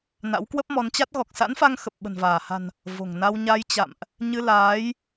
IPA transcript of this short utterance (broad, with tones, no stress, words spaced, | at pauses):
na̰˧˥wkwə˦˥p̚mɔ˨˦nt͡ɕa˦˥t̚ ɣɔ˨˩k̚sa̰˧˥nfa˧ŋ xə˨˩p̚ɓə̤˨˩nvaː˧˩ha̤˨˩n | vo̤˨˩ŋna˧w ɲa˧jt͡ɕa̰˧˨mʔ | ɲɨ˧laː˨˦j